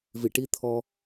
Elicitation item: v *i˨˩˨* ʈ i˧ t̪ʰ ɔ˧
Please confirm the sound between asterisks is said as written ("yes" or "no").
yes